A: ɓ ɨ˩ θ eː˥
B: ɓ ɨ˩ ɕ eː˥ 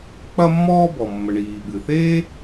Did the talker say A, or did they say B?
A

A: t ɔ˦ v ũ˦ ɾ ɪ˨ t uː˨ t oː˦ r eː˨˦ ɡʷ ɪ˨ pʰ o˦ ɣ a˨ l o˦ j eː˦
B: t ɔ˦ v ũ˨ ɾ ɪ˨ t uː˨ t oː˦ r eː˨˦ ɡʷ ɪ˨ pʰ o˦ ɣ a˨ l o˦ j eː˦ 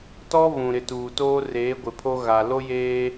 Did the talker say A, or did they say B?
B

